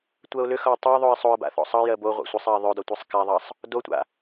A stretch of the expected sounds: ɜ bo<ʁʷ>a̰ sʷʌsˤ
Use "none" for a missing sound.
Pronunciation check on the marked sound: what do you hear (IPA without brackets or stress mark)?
ʁʷ